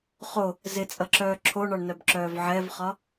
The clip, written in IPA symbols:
χo | zɪt͡sʼʌǁœː ǁʰoɳɒɳnœbǁœːv ʕɛvχɒ

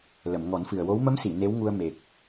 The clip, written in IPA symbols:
lə˨˩˨mŋɔ˨˩˦nfɨ˨˩ə̯wo˧˥w mə˧˥msi˨˩˨ ne˧˥wŋu˧ə̯ me˨˩k̚

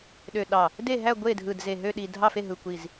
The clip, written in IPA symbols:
ɗø˧˩ ɗɑ˧˩ | de˥˩ɦæ˥˩ ɡʷe˥˩dʱɯ˧˩dze˧˩ ɦø˥˩ ɗi˧˩dʱɑ˥˩fe˥˩ɦɯ˧˩ kʷi˧˩z

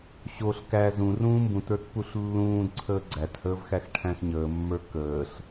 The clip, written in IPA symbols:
ɕoɬ kæ zũ rũːmbũtə˞t puɬlːũːdǀʰəː ɡ͡ǀæthəːv xæxʈʰæ̃xɲəːmːə˞ kəːɬ

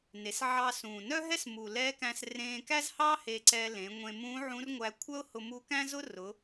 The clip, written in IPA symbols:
ne˩˧sʕɑ˧ sũː˩nœ˥ɦɛ˥smu˩ lɛ˧˥ kæ̃˧s rẽː˧kæ˥zhɑ˥ he˧ǀɛ˧lẽ˩˧ ŋʷẽ˧ mũ˧˥ʕũ˧˥rŋʷæ˧ kʷʰœ˥ʊ̯ hʊ˧mu˧˥kæ̃˥zʊ˥ rʊ˩˧

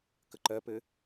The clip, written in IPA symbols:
kəǃɜpɘ

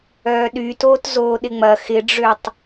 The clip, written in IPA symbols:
œːɗytoːt zoːɗɪŋ͡mɐ xɪɖ͡ʐøtˤ

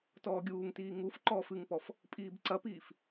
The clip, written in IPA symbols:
tɔːɡʲuːŋtiː ŋufǃɔːf ɨŋpɔf | pʼiːbǀɐpiːf

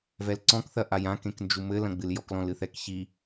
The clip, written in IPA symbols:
vɛlǀɔ̃kθɐʔaj ãkẽknd͡ʒu mɘ lɐ̃ɡ͡bɨljɔklɔ̃l ɨθɛkçi

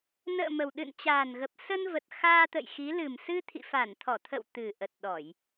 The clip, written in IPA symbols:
nə̰ː˧˨ mə˨˩w ɗɨ̰˧˨nt͡ɕaː˨˩nɣə˨˩p̚ sə˧nvə˨˩t̚ xaː˧t̪ə̰˧˨jxi˨˦ lɨ˨˩msɨ˧ t̪ʰḭ˧˨fa˧˩nt̪ʰɔ˧˩t̪ʰə̰˧˨w t̪ɨ˨˩ ʔə˨˩t̚ ɗɔ˧˩˨j

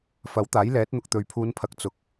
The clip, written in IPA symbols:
fɐ˨˥wt̪aː˨˥j lɛː˨˥t̚n̪ʊ˨k̚t̪ɵ˨ɥ pʰuː˨˧npʰɐ˨˥k̚ t͡sʊ˨˥k̚

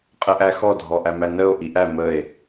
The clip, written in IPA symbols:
qʼəʔæxɔ dʱɔʔæmænəo̯ ʔiʔæ məe̯

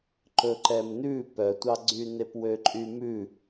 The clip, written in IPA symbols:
ǃɵǃɛmnʉ pœtʷɑɡ͡ǀy nepwøǃʼymʉ

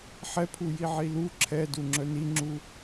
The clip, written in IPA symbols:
ħɛpʰuji ʕilu ǁʰɛduŋ͡ǁœ niŋ͡ǁu

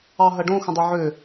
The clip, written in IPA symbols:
ɑɦɐɖõ xə̃dˤøʕø

